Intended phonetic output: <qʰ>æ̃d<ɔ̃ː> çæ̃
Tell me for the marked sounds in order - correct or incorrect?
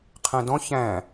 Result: correct, incorrect: ɔ̃

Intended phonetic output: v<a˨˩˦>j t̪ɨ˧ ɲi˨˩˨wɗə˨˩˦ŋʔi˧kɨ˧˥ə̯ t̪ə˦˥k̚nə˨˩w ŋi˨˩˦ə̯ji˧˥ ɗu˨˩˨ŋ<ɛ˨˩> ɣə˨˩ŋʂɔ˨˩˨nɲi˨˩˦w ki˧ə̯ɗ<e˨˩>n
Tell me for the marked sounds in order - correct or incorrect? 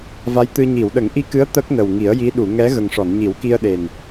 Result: incorrect: a˧˥, incorrect: ɛ˧˥, correct

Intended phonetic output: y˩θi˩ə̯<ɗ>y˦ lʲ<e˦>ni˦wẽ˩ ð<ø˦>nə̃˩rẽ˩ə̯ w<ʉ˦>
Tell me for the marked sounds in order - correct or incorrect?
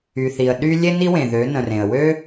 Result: correct, correct, incorrect: ø˩˧, incorrect: ø˦

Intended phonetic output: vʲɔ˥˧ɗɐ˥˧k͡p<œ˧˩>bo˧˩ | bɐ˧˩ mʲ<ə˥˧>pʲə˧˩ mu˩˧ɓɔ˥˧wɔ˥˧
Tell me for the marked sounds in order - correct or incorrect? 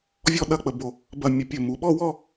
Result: incorrect: ə˧˩, incorrect: ə˧˩

